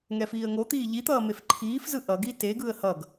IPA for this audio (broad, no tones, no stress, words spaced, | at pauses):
ŋɛfiːə̯ŋot̪iː ʎit̪ʌː mefǃʰiːfzɯ ʔʌɡi teɡɯə̯ hʌɡ